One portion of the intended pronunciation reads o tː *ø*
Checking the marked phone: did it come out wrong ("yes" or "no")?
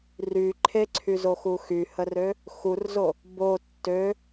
no